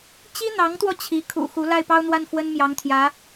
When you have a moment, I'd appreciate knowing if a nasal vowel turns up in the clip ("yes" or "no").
no